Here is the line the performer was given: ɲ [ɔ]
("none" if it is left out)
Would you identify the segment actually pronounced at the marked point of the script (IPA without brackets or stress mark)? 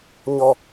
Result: ɔ